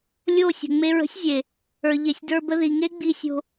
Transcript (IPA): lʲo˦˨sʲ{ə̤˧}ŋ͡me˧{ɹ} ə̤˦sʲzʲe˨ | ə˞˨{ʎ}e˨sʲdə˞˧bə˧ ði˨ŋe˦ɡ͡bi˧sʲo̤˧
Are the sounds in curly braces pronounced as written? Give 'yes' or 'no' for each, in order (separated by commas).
no, yes, yes